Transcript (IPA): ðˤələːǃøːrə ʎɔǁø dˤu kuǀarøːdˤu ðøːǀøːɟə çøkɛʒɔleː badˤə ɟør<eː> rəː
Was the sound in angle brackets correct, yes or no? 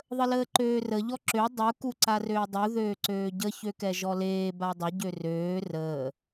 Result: no